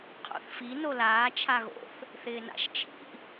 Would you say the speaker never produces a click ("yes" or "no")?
yes